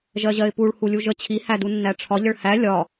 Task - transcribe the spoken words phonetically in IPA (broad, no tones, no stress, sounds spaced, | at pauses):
ʒ ɜ ʑ ɜ ɪ̯ p u ɭ h u lʲ u ʒ ə t͡ɕʰ i h æ d u nː æ ʈ͡ʂʰ ɒ ʎ ə ɭ h æ lʲ ɒ